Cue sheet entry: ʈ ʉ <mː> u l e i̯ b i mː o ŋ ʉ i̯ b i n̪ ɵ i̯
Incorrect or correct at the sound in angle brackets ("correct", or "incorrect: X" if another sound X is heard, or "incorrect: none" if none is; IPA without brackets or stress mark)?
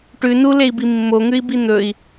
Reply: incorrect: n